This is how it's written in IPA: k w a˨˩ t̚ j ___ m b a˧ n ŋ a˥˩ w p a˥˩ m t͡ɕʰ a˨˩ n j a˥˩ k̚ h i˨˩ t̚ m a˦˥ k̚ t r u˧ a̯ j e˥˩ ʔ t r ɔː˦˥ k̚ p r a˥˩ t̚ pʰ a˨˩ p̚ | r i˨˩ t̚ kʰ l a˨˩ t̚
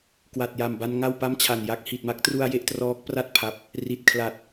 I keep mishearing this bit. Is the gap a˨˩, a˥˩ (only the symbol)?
a˨˩